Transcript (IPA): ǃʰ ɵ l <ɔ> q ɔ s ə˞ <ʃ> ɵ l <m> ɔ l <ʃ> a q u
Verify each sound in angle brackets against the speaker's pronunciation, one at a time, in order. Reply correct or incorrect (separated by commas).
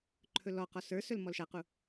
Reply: correct, incorrect, correct, correct